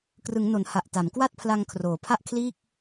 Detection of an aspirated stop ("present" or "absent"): present